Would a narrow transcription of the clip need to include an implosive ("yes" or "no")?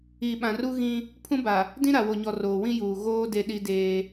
yes